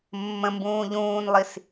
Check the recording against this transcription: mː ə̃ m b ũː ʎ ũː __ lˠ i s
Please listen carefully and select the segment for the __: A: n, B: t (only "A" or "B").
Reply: A